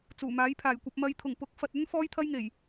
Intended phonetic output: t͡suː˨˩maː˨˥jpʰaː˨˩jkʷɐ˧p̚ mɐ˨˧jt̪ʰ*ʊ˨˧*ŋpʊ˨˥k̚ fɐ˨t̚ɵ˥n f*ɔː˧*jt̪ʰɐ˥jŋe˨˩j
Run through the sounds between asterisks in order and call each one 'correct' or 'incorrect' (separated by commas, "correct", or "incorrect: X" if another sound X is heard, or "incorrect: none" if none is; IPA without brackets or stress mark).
incorrect: ʊ˨˩, incorrect: ɔː˥